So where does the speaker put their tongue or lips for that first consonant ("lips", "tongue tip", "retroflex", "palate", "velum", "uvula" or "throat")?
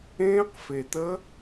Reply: uvula